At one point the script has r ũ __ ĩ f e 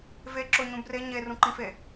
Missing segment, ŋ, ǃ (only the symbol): ǃ